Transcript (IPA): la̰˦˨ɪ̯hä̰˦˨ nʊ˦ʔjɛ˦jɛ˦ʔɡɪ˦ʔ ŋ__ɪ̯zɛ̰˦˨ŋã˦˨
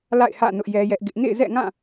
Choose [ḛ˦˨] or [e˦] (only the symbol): ḛ˦˨